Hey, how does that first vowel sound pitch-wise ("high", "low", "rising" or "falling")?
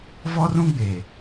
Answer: high